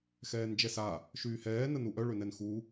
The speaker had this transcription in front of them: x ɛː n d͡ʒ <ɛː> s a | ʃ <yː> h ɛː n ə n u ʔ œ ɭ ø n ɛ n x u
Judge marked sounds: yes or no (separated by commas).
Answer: no, yes